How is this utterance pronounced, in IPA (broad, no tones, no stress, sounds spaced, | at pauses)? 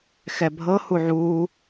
x ɛ bʱ ɤ h u ʕ u